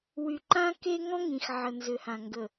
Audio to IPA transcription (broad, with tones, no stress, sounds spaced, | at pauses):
w y˨ ǃ ã˦ k e˦ ŋ ɔ̃˦ ŋ ĩ˨ x ʕ ə˨ n z ʏ˨ h ã˨ ŋ ɡ ə˨